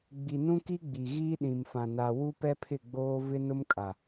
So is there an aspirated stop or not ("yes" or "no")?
yes